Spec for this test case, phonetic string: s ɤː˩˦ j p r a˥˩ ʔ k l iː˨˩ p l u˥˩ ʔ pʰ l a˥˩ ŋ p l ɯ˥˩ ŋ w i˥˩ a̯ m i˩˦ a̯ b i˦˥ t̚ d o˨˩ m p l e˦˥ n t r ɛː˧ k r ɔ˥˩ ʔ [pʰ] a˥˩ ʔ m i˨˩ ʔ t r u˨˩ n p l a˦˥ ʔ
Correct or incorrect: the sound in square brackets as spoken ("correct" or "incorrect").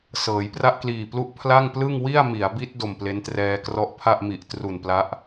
correct